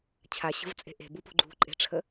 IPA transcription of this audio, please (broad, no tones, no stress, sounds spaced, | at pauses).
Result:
t͡ɕʰ a ɕ ə̤ v t͡sʼ e̤ ʔ e̤ b u p ṳ ɡ͡ǃ ṳ ǃʼ e̤ ʈ͡ʂʰ ə